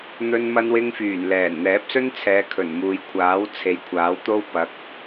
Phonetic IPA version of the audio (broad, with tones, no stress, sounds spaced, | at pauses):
n̪ ɵ˧ n m ɐ˧ n w ɪ˧ ŋ f yː˨˩ n l ɛː˨˩ n n̪ ɛː˨˥ p̚ s ɵ˥ n t͡sʰ ɛː˨˧ kʰ ɵ˨˩ n m uː˨ j kʷʰ aː˨˥ w t͡sʰ e˨˥ j kʷʰ aː˨˥ w t̪ o˥ w p ɐ˨˥ k̚